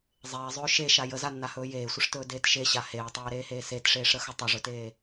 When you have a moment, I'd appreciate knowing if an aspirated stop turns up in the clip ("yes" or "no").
no